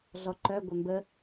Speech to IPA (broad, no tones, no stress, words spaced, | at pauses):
ɮɔǃœ ɡʷœmbə